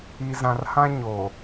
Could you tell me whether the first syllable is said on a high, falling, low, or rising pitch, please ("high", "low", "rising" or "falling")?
low